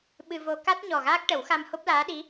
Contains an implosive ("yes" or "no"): yes